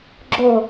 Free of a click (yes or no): no